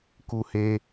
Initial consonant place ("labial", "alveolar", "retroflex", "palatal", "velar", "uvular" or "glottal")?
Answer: velar